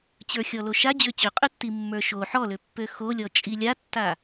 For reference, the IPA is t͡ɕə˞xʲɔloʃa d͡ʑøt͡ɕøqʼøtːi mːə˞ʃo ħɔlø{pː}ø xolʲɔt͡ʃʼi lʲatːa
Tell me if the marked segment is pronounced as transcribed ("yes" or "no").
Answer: yes